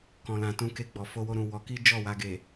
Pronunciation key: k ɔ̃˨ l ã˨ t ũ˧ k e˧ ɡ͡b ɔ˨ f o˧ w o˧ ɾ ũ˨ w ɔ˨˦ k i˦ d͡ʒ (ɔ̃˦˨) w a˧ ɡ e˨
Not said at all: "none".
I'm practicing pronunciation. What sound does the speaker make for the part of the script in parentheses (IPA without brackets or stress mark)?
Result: ɔ˦˨